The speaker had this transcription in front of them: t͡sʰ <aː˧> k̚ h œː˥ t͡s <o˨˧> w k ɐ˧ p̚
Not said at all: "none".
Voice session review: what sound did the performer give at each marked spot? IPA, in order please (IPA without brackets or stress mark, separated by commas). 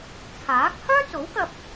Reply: aː˨˥, o˨˥